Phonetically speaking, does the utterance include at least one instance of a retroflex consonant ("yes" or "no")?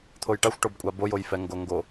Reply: yes